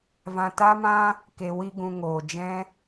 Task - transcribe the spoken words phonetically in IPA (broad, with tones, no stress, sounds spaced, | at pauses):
v ã˧ t a˦ m ã˦ | k e˨ w i˧ ɡ ũ˨ ŋ oː˨ d͡ʒ ɛ̃˦